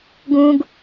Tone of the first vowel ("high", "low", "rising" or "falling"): low